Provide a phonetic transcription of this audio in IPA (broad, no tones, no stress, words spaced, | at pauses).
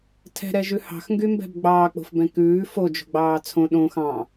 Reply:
tʰɛ̤ɾɛʒʉ hɑ̤xŋɡymbɛ̤b ɡ͡bɑːk͡po̤fbɛ̃ kʉː fod͡ʒo̤ɡ͡bɑː t͡sʰõ ɗõ xɑ̃